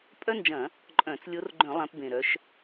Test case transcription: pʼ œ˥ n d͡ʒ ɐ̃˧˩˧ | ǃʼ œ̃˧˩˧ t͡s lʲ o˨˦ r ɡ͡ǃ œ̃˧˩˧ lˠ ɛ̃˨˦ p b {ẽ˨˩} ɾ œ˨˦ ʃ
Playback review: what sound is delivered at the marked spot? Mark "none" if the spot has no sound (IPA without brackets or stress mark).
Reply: ẽ˨˩